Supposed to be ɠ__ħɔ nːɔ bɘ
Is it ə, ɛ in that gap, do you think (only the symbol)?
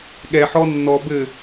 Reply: ɛ